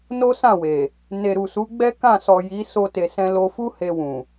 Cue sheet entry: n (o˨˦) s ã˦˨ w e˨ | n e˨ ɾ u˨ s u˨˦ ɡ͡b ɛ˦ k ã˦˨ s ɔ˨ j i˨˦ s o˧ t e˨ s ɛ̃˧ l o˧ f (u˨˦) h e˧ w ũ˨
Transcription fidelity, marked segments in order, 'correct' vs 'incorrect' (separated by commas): incorrect, incorrect